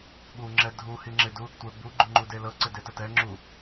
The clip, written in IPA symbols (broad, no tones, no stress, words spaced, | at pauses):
ɓuŋ͡ǁɛ dʱu hiŋ͡ǁɪdu | tʷɛbu ɡ͡ǃuŋ͡ǃudelɤ ǀɪdetətɛ ŋ͡ǁu